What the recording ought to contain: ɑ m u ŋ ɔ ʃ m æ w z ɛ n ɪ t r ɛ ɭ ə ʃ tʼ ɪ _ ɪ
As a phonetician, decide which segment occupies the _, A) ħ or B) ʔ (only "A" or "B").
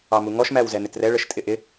B